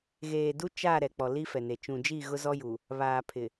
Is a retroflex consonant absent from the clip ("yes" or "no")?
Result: yes